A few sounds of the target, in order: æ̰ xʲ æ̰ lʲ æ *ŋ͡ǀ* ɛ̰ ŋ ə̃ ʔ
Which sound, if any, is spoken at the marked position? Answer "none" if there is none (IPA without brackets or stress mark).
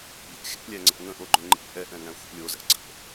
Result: ŋ͡ǀ